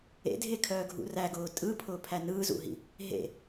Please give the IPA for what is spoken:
ḛdʱekʰœːɡʱṵ ræɡʊː tʼɯpʰʊːpʰæ nɯːzṵɦḭ | ɦḛ

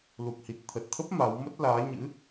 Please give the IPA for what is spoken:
lu˨˩k̚hi˨˩t̚t̪ʰə˨˩t̚t̪ʰə˦˥p̚ ma˨˦w mə˦˥t̚laː˨˦ɲɨ̰˧˥

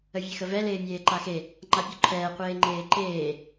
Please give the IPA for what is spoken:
əvʲexəvɛ leːmʲeːǃaxe | ŋ͡ǃapʲoǃʰɛː qʷeːŋ͡ǃeːǃeː

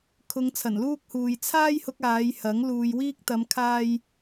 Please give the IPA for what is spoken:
kʰʊ˨˧ŋ t͡sʰɐ˨˩nluː˧k̚huː˨j t͡sʰaː˧jhʊ˨k̚ aː˨˧jhɐ˨˥ŋ luː˨jwiː˧k̚t̪ɐ˨˧mkʰaː˧j

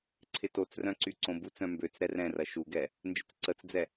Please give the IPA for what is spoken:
ǀʰɪtot͡srœ̃ ǀyǀõbut͡sœ̃ mbøt͡s ɾɛrɛ̃rɐ ʃuɡɛ | nd͡ʒə̰t͡sǀət͡sd͡zɛ

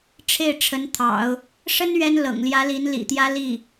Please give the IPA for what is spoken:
ʈ͡ʂʰe˥˩ɪ̯ʈ͡ʂʰə˧˥nt̪ʰɑ̰˨˩˦ʊ̯ | ʂə˥n ɥɛ˥nlɤ̰˨˩ŋljä˧˥li˧˥n lḭ˨˩t̪jä˥li˥˩

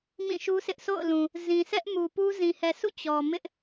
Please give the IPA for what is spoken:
mĩ˦˨ʃu˦sʰɪ˦ʔ sʰo̰˦˨ʊ̯lũ˨ | zĩ˨sɛ˦ʔ mu˨pu˦ zĩ˨hɛ˨sṵ˦˨ t͡ɕɔ˨ mɪ˦ʔ

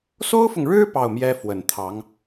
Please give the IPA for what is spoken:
so˥ʊ̯fʊ˨ŋɻɻ̩˥ pɑ˥˩ʊ̯mjɛ˥ fwə˨˩nt̪ʰɑ˧˥ŋ

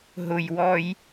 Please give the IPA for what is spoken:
ɦʊjwɔj

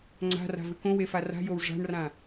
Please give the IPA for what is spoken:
ŋ͡ǀa̤ra̤vɨ kõwefa ra̤jow ʐa̤ɳrã

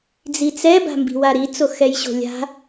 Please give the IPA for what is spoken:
d͡zit͡sɛ ba̤mbi̤waɾi t͡soxɛjɕo̤lʲa̤

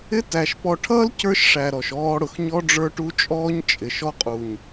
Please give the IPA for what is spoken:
ɪ˦tæ˨ʃ pɔ˨ʈʰʌː˦l cə˞˦ʃʂæ˨ ɾɔ˨ʃɔː˦ɽʊ˨x ɲɔ˦ɖ͡ʐə˞˦ʈu˦t͡ʃʼɔː˦ɲ t͡ʃʼɪ˨ ʃɔ˦qʼu˨ɲ

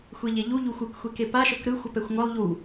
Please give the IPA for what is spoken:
xʷeʎeʎu ʎuxʷɯkxʷeke paʃɤk ɾɯ xʷɤpɛxʷŋʷɤlˠ ʎu

